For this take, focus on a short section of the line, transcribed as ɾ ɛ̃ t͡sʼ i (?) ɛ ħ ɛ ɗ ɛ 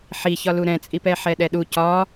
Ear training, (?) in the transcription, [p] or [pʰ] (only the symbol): p